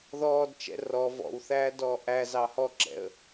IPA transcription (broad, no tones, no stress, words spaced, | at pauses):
ðɔːdt͡ʃɛ̰ rɔ vɔ̰wθæːdɔː ʔæzɑ hɔǁɛ̰ə̯